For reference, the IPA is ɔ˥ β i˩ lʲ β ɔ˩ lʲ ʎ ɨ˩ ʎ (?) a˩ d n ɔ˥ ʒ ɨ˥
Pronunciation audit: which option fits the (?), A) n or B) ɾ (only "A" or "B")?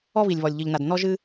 A